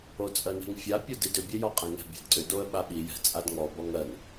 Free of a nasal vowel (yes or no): no